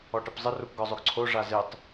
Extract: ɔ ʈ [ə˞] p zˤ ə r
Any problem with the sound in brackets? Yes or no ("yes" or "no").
yes